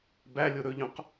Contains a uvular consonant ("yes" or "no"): yes